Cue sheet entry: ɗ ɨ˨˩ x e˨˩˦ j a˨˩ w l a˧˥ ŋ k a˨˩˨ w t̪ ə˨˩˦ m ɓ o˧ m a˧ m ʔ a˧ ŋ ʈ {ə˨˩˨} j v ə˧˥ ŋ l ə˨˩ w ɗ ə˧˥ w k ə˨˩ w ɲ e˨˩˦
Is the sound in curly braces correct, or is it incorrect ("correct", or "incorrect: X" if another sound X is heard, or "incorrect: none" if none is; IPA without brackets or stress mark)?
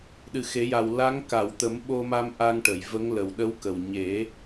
correct